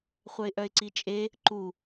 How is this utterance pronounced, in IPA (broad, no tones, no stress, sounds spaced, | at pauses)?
χʷ œ ɪ̯ ʔ œ ɪ̯ ǀ i t͡ʃʼ e | ǃ u